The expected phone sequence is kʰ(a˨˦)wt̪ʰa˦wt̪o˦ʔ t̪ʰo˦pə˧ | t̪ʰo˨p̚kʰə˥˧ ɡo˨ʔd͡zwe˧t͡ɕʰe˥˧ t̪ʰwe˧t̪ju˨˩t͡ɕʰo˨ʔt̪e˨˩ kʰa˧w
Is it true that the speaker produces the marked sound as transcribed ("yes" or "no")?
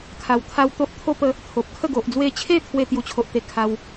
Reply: no